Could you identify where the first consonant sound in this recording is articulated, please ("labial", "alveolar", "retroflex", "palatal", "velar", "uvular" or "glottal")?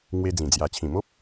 velar